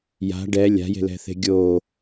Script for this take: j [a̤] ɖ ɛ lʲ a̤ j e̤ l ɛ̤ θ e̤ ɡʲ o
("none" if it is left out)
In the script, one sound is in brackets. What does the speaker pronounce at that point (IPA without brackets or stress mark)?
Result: a̤